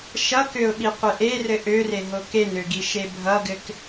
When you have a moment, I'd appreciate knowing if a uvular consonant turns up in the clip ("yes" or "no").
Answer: yes